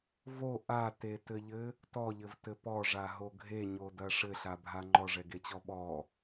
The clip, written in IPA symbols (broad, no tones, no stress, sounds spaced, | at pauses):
v o ʔ a t e t ɘ ʎ ɘ | t ɔ ʎ ɘ v t ɘ p ɔ ʐ a ɦ o ɡʱ e ɲ o d ɐ ʂ ɘ ɬ a bʱ a ŋ͡ǃ ɔ ʐ ɛ ɡ e t͡ɕ ɔ ɓ ɔ